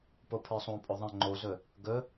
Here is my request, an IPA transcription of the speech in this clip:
p o pʰ ə˞ sˤ õ pʼ ɵ ðˤ ə̃ ŋ͡ǃ o z ɵ | ɡ ɵ

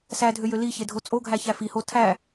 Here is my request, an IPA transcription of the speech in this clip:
s æ dʱ ø j ø l i ç e dʱ o t͡sʼ o ɡʱ æ ç æ f i h o tʰ æ

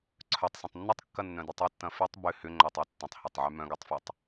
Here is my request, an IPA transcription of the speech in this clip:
ǀʰ œ tˤ s ɐ̃ tˤ nː ə tˤ kː ɐ nː œ̃ d y tˤ ɪ tː ɐ̃ f y tˤ b ʏ h ʏ ŋ͡ǃ œ tˤ y tː ə̃ tˤ h ə tˤ ʕ y m œ̃ ɡ œ tˤ f ə tˤ

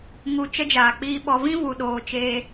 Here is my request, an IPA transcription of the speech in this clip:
ŋ u˧ t͡ʃ ə˦ d͡ʒ aː˨ k͡p iː˦ ɓ ɔ˦ v ĩ˦ v u˨ ɗ oː˨ t͡ʃ eː˧

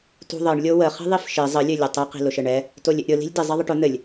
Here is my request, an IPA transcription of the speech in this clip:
t ṳ ðˤ ɘ ɳ lʲ o w ə χ i̤ ðˤ i f ʃ i zˤ ə lʲ ɘ lʲ ɘ tˤ ɪ q i̤ l ʊ ʃ ɘ ɳ ɛ | t o lʲ ɪ ʔ ɾʲ ʊ l i̤ lʲ d ɪ zˤ ɛ ðˤ ə ʈ ʊ n̪ ɘ lʲ

